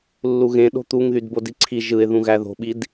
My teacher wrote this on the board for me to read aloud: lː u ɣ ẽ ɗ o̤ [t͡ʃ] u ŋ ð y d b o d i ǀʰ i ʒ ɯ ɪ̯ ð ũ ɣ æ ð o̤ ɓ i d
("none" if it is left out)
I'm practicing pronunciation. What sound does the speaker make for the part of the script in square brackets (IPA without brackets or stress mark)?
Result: t̪